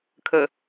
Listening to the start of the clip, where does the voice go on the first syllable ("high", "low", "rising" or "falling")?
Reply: low